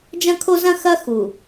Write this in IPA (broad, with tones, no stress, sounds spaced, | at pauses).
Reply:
d͡ʒ ɐ̃˦ kʰ o˦ z ɐ̃˦ x ɐ˦ x u˨